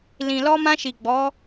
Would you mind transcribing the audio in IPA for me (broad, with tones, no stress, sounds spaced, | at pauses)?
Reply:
l ĩ˨ l ɔ˧ m ã˧ ʃ i˨ ɡ͡b ɔ˨˦